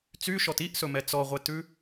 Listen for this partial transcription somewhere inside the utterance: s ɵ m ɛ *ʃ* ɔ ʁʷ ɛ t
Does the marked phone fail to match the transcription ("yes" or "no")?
yes